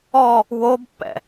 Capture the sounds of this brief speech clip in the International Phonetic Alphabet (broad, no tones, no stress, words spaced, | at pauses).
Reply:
ɔ | wobpːɛ̰